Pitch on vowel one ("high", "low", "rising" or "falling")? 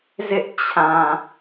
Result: high